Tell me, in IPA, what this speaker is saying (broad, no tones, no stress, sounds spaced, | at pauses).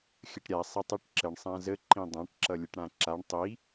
xʲ ə ʈ ɾʲ a sˤ e tˤ i ʈ ǁ ə ɳ sˤ ã z ə ǃ ĩ dˤ ã ʈ ǁ ʌ lʲ ə ʈ ɽ ã ǁ a ɳ tˤ i